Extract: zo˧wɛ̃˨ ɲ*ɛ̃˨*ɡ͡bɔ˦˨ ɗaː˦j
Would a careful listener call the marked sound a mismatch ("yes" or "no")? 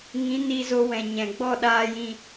no